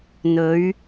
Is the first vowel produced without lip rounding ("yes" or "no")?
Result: no